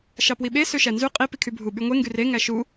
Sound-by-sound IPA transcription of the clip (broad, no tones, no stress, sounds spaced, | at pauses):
ʃ ɑ p w i ɓ e s ø ʃ æ n z y qʼ i p i kʰ y bʱ u ɓ y ŋʷ e ŋ ɡ y r e ŋ æ ʃ u